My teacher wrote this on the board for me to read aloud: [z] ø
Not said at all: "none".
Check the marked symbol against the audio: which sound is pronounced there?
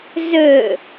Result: z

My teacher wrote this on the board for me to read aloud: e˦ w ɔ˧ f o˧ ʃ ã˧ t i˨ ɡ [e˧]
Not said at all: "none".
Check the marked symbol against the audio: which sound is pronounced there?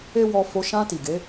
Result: e˨˦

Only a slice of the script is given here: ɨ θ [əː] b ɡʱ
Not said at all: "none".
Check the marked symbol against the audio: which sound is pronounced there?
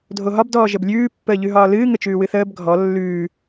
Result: əː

